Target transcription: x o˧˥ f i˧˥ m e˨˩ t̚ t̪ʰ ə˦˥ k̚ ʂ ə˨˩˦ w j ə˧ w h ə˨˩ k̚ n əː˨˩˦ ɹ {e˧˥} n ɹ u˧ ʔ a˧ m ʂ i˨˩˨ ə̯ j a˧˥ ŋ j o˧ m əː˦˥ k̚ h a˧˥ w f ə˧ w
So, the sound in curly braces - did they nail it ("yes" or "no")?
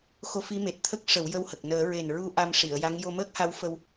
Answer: no